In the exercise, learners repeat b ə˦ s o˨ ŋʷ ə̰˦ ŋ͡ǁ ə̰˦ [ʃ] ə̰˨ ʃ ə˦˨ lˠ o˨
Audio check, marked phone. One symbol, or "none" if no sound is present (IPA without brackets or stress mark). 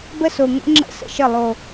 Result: s